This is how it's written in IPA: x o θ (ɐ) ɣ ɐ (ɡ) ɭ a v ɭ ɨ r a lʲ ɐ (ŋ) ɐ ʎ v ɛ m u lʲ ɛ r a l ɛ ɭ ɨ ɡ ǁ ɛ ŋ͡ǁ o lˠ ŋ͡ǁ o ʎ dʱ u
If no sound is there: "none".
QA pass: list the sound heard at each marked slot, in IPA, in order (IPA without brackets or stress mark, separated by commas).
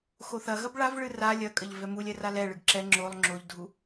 ɐ, b, kʼ